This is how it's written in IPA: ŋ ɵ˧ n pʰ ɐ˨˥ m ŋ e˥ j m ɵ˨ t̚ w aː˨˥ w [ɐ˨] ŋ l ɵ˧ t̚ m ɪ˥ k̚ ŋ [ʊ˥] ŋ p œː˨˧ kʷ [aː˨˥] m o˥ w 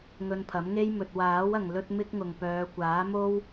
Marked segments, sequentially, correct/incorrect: correct, incorrect, correct

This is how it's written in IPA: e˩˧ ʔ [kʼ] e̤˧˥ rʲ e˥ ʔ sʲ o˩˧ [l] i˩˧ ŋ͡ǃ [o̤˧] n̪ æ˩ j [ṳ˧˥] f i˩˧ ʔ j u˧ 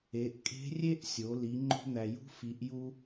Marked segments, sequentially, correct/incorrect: correct, correct, correct, correct

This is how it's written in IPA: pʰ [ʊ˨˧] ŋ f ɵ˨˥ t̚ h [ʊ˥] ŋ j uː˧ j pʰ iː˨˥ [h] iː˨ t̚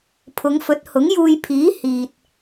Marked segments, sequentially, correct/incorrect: correct, incorrect, correct

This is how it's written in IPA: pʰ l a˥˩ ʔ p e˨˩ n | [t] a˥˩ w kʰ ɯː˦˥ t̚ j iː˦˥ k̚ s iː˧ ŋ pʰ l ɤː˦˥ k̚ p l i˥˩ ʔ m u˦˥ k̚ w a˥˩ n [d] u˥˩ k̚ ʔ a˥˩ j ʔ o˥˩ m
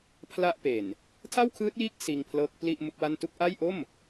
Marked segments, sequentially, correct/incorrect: incorrect, incorrect

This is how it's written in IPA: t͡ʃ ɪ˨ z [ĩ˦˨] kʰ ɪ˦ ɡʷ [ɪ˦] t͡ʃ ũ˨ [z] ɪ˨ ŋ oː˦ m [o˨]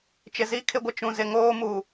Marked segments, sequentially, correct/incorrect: incorrect, incorrect, correct, incorrect

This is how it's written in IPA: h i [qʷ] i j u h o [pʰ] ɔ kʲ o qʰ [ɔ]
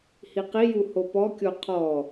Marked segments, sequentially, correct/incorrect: incorrect, incorrect, correct

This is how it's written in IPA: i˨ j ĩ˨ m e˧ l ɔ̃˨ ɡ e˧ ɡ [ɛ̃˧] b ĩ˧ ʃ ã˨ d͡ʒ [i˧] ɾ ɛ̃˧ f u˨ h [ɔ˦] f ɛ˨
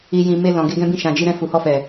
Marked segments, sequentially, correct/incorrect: correct, correct, incorrect

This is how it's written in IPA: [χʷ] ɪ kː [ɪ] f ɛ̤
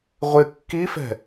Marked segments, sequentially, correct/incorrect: incorrect, incorrect

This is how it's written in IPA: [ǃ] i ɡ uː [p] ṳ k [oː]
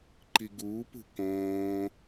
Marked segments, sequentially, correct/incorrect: correct, correct, incorrect

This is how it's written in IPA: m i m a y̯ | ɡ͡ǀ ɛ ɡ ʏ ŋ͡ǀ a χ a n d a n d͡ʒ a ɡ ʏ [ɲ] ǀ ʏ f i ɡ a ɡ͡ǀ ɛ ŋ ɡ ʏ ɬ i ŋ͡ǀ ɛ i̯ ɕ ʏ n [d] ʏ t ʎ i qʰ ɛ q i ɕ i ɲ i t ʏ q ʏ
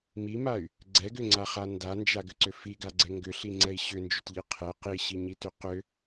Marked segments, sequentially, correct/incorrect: incorrect, incorrect

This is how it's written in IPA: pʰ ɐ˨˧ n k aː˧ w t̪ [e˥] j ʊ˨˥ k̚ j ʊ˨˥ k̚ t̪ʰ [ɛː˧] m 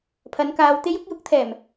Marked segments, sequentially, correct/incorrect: correct, incorrect

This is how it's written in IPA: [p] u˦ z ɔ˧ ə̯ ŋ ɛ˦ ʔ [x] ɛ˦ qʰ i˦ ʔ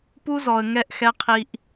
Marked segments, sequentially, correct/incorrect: correct, correct

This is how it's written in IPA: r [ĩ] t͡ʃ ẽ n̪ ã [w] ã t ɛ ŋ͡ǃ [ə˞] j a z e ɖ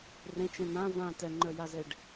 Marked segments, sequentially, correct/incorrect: incorrect, incorrect, correct

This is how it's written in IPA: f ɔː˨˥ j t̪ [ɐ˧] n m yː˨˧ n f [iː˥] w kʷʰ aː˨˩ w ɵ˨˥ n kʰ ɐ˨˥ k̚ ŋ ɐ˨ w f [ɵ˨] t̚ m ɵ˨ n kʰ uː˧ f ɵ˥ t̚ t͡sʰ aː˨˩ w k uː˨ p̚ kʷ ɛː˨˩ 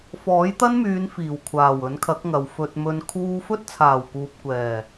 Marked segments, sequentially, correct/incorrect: incorrect, incorrect, correct

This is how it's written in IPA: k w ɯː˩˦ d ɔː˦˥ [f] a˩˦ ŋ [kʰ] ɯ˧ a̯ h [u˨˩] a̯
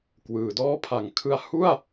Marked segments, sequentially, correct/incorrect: incorrect, correct, incorrect

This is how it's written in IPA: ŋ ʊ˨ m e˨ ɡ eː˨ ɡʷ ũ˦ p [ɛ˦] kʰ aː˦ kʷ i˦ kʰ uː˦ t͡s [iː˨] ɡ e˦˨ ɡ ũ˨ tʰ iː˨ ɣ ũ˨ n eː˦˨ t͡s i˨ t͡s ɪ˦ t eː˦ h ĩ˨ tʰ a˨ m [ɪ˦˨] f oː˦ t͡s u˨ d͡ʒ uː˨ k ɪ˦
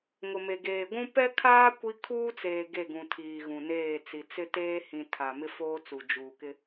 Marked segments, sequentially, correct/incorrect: correct, incorrect, incorrect

